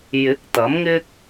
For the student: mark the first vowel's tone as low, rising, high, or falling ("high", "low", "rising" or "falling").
rising